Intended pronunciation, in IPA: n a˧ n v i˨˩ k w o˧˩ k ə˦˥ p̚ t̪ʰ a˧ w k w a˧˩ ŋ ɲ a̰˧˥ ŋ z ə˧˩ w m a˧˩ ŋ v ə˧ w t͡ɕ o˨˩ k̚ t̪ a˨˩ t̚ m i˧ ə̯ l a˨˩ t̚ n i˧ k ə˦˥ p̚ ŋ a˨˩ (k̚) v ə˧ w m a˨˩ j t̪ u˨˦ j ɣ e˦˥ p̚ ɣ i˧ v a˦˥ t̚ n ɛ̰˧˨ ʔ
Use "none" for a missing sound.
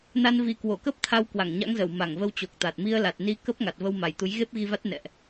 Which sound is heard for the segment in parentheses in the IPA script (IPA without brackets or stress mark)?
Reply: t̚